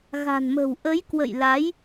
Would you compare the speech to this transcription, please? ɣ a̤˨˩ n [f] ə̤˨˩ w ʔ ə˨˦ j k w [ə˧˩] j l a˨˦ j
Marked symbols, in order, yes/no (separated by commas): no, no